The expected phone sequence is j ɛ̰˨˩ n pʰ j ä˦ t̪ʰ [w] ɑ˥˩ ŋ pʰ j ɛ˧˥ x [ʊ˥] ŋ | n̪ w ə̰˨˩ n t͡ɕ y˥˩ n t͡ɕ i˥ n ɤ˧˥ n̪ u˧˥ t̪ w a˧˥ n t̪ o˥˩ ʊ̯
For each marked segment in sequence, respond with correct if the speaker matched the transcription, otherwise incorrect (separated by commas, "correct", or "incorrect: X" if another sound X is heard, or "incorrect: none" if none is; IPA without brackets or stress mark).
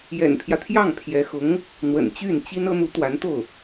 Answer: incorrect: j, incorrect: ʊ˧˥